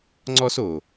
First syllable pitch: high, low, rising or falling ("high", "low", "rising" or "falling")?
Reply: high